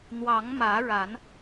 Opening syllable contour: rising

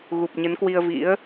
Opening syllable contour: low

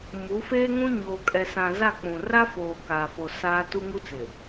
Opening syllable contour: rising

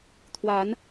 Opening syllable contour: rising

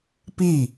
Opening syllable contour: falling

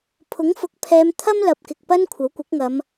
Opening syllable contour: rising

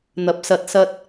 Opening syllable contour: rising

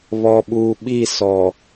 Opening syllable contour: low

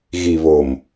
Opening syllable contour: low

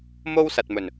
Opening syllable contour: high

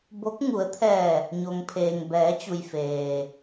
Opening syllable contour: rising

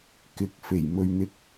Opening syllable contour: rising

